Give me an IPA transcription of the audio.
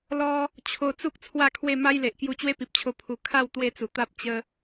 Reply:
l ɔ˧ | t͡ɕʰ o˧ t͡s u˦ k̚ t͡sʰ w a˥˧ kʰ w e˥˧ m a˦ j l e˨ ʔ k j u˧ t͡ɕ w e˦ p i˨ p̚ t͡ɕʰ o˧ pʰ u˨˩ kʰ a˥˧ w t̪ w e˥˧ t͡s u˨˩ t̪ a˦ p̚ t͡ɕ ə˧

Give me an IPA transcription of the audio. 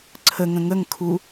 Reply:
ǀʰ ə ŋ ə̃ ŋ ə ŋ kʰ u

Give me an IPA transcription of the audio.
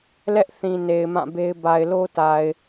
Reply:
l ɛ˦ ʔ θ ĩ˨ n e˨ ɪ̯ m ã˦˨ b e˦ ɪ̯ b a˨ ɪ̯ l o˦ t a˨ ɪ̯

